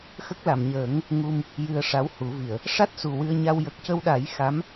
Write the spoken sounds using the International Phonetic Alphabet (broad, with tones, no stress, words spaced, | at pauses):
xə˦˥k̚la˨˩˨mɲəː˨˩˦ŋ | ŋu˧m | jɨ˧ə̯ʂa˧˥whu˨˩˦vi˨˩˨ə̯ | ʂa˦˥t̚ su˨˩wɨ˧ə̯ɲa˧w jə˨˩k̚cə˧wɗa˨˩˦j xa˧˥m